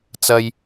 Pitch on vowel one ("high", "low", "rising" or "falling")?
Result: low